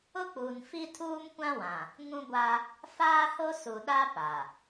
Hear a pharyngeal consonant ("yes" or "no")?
no